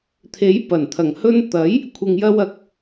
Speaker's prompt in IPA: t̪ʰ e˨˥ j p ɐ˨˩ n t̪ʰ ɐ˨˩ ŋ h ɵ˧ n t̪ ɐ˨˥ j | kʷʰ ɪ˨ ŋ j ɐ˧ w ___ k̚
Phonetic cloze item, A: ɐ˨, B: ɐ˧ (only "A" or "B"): A